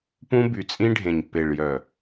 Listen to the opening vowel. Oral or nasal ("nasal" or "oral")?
nasal